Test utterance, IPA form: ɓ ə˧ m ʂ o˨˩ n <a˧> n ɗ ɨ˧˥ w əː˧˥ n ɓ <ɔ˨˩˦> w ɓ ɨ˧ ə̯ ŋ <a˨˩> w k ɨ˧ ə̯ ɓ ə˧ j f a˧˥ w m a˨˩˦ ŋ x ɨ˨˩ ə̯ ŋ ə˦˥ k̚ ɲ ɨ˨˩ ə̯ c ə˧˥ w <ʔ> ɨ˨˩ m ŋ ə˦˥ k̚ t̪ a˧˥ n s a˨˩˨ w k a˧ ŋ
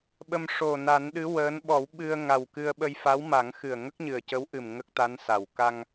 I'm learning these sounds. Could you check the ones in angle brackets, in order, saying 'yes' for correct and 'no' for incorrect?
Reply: no, yes, yes, yes

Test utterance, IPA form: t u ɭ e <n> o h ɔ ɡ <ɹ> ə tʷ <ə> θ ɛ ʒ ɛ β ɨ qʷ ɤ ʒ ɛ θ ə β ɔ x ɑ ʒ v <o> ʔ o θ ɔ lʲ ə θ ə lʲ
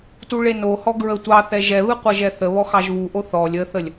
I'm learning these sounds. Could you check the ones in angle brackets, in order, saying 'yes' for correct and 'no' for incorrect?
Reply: yes, yes, no, no

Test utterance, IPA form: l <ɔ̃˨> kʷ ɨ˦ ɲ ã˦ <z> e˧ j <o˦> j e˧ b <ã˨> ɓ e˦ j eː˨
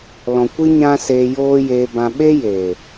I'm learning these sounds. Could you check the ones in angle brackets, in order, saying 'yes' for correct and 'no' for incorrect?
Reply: yes, no, no, no

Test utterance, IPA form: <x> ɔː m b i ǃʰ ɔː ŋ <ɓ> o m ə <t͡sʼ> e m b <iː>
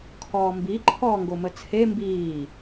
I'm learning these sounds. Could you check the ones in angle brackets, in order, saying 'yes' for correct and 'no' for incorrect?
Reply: no, no, no, yes

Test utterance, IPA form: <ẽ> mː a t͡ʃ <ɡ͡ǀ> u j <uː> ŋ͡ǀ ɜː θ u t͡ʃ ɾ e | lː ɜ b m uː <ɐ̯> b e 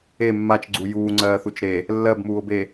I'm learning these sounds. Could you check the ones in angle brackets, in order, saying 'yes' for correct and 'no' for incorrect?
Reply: no, yes, yes, no

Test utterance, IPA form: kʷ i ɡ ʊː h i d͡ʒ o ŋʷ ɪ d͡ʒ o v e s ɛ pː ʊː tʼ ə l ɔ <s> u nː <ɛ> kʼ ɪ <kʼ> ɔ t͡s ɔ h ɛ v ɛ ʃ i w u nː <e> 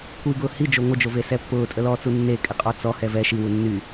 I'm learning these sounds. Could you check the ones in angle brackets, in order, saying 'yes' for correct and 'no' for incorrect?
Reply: no, no, no, no

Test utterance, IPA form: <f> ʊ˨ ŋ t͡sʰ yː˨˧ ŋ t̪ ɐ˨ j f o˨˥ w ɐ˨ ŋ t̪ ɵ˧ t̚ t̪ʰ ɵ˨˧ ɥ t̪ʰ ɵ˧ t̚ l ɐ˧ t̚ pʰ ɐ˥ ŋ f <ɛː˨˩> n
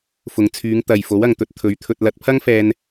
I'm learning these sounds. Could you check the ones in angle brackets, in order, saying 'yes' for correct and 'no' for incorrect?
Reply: yes, no

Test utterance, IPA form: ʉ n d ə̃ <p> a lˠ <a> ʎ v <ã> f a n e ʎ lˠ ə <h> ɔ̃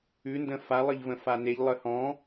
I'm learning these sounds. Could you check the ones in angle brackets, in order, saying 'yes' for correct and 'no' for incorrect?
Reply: no, no, no, yes

